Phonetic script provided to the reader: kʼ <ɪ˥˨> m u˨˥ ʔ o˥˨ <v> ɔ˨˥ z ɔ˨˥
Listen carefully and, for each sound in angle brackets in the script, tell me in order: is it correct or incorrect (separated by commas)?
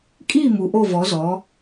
incorrect, correct